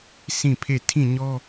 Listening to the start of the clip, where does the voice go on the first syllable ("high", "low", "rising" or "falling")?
falling